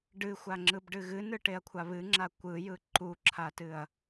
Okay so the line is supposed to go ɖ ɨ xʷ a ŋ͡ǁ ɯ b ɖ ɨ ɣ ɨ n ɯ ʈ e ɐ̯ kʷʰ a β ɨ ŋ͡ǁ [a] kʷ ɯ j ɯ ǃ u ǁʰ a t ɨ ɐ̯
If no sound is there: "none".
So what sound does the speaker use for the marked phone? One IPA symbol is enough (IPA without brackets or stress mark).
a